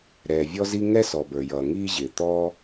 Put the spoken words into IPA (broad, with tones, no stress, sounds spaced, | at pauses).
ɾ ɛː˩ vʲ ɔ˥ z i˥ ŋ ɛ˥ s ɔ˩ b ə˞˩ j ʌː˩ ŋ iː˥ ʑ ɪː˩ t̪ ɔː˥